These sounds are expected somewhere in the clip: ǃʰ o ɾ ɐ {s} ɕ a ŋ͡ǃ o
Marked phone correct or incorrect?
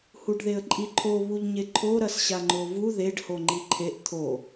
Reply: correct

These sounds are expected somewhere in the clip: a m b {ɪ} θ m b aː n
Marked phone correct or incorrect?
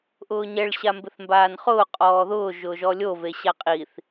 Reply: correct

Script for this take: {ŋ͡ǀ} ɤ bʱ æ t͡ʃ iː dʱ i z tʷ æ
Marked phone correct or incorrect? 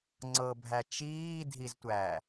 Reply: correct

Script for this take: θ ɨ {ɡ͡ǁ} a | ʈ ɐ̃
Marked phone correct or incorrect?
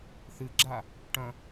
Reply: correct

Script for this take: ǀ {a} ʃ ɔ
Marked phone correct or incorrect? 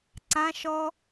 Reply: incorrect: ã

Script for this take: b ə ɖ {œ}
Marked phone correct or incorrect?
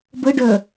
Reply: correct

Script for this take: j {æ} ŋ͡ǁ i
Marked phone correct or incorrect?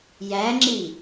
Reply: correct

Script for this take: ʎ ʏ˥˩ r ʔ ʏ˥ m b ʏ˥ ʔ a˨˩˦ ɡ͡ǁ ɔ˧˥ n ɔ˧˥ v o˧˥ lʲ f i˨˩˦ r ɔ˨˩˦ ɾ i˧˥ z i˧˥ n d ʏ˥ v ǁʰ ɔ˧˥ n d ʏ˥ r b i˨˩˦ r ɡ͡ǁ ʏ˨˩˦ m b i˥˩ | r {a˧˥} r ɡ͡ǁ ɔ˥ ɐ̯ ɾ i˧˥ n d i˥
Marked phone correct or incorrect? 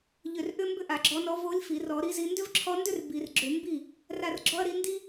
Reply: incorrect: a˥˩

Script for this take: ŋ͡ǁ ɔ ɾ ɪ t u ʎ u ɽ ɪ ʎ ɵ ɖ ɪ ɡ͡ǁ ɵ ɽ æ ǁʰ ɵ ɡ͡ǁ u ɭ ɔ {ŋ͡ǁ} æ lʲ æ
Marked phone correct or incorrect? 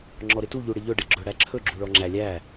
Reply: correct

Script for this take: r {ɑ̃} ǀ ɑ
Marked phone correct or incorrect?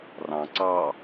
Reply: correct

